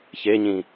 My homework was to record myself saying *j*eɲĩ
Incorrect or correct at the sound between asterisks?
incorrect: ç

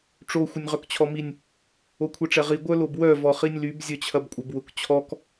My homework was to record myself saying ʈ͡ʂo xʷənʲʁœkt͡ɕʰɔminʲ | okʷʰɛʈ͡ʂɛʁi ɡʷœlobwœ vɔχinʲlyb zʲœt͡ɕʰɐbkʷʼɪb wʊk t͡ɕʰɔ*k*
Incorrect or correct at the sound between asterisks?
correct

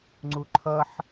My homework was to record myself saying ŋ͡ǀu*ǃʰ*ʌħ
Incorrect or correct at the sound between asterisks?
correct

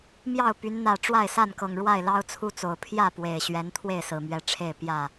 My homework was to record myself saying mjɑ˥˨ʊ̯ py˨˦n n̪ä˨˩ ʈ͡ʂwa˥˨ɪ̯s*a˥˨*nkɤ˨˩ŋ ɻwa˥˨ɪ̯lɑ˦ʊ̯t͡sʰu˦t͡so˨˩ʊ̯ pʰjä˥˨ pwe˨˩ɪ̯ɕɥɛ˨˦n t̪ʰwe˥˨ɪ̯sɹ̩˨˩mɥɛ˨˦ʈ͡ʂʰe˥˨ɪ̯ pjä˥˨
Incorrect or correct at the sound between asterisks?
correct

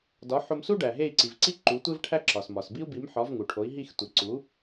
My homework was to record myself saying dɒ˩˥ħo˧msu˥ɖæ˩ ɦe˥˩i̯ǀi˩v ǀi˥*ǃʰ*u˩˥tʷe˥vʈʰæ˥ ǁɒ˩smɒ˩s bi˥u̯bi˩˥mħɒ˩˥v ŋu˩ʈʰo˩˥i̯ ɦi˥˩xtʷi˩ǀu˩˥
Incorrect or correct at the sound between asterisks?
incorrect: ǃ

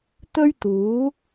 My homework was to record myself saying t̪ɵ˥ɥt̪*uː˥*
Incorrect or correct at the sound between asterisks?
incorrect: uː˨˥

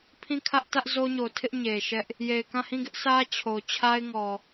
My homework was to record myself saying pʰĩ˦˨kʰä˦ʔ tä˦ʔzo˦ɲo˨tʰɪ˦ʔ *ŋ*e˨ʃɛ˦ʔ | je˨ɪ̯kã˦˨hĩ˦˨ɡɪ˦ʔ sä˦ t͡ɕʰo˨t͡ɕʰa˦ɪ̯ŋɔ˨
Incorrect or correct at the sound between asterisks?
incorrect: ɲ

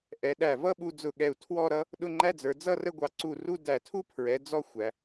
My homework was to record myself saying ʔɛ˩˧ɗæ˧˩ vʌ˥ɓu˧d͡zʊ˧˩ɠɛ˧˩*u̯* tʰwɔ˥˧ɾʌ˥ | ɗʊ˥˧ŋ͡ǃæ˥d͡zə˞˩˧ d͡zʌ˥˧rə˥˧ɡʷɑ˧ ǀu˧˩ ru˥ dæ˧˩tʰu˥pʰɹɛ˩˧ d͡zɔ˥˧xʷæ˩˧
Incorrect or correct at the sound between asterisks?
correct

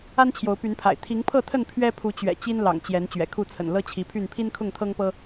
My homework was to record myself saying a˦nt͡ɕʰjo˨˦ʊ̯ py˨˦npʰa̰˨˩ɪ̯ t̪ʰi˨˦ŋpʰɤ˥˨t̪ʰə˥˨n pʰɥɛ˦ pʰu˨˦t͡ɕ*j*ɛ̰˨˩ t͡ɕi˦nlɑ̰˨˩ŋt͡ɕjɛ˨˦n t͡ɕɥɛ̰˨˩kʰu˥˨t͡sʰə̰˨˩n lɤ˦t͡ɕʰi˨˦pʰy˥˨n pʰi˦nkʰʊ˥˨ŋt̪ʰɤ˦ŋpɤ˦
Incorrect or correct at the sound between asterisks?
incorrect: ɥ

